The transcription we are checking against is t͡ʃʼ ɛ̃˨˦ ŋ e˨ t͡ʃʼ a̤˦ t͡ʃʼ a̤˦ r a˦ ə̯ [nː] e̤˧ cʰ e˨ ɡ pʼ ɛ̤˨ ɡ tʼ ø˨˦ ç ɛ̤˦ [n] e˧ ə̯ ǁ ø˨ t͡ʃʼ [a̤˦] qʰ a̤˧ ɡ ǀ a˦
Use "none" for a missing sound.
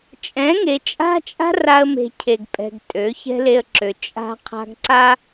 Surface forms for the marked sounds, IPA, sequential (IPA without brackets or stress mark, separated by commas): m, l, a̤˦